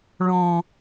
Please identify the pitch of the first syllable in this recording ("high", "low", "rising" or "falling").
low